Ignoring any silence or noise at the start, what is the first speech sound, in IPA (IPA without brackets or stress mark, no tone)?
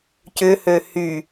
c